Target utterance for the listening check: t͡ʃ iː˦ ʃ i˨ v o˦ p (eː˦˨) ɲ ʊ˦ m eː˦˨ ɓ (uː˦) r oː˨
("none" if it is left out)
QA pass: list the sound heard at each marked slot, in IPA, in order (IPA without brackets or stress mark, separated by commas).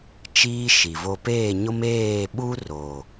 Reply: eː˦˨, u˦